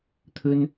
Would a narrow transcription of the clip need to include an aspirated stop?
yes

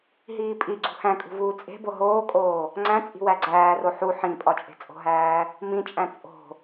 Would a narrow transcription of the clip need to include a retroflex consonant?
no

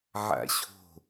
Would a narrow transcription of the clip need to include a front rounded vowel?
no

